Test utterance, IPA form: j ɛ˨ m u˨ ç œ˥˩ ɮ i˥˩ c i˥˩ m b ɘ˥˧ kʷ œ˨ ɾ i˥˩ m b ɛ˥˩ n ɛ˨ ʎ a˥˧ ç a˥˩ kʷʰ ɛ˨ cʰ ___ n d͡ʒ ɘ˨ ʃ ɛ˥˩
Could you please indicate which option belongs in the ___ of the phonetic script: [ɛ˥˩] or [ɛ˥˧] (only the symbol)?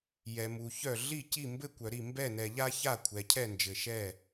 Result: ɛ˥˩